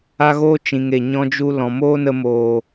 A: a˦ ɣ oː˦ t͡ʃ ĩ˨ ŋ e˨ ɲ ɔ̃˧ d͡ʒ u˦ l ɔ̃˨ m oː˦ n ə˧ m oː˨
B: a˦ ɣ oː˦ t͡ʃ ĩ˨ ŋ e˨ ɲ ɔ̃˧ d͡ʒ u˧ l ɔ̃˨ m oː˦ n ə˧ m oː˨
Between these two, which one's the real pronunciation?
B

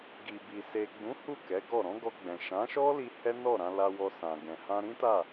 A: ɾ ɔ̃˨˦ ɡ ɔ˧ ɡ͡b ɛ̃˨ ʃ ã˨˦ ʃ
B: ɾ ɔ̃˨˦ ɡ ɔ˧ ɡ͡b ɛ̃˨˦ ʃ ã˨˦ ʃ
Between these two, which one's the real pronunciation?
A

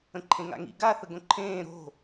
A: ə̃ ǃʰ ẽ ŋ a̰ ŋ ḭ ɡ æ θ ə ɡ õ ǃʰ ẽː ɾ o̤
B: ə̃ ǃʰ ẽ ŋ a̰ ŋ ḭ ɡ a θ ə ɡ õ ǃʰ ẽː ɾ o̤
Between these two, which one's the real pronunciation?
B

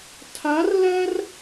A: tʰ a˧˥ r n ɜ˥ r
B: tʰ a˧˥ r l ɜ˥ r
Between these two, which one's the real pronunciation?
B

